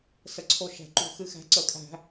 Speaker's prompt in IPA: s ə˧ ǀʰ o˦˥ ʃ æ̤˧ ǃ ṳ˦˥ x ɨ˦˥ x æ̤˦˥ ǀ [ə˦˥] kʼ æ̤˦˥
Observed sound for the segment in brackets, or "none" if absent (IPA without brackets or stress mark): ə˦˥